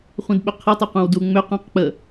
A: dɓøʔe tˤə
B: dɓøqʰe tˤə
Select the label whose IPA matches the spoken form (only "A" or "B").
B